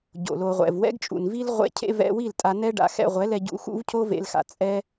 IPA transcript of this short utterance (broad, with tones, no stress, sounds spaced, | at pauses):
ɟ o̰˨ l o˨ ʁʷ ɛ̰˨ v w ɛ̰˦ ɡ t͡ʃʼ ṵ˨ n v i˦ l ʁʷ ḛ˦ cʰ ḛ˦ v ɛ̰˦ w i˦˨ l tʼ a˧ n ɛ˦ ɖ a̰˧ x ɛ̰˧ ʁʷ ɛ˨˦ l ɛ˧ ɟ ṵ˧ x ṵ˦ v cʰ o˦ v ḛ˧ l x a̰˧ t͡sʼ ɛ˦